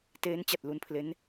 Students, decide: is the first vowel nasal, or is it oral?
oral